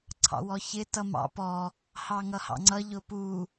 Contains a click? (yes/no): yes